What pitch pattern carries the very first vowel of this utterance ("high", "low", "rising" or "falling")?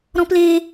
high